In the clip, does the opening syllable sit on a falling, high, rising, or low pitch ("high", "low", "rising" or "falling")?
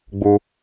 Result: high